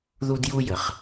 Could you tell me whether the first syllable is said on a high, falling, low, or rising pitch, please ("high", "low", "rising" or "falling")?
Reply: high